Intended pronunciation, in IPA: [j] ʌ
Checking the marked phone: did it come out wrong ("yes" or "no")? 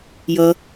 no